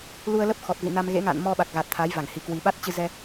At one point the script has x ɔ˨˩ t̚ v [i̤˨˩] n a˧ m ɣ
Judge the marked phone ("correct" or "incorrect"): incorrect